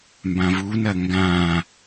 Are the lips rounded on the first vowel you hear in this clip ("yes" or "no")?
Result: no